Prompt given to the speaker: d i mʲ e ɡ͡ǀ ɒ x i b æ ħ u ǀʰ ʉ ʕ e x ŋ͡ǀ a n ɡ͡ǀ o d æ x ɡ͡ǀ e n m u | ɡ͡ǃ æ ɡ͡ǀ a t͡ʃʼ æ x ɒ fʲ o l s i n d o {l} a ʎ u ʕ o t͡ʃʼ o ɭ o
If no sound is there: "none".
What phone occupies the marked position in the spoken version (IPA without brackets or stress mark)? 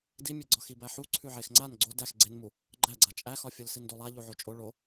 lˠ